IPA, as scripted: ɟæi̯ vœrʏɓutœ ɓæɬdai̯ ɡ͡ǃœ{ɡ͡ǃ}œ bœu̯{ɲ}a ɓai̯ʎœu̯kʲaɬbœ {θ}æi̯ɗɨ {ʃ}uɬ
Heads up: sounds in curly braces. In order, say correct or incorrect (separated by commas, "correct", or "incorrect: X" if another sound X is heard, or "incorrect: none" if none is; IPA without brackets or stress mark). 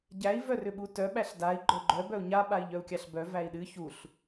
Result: correct, correct, incorrect: v, incorrect: ç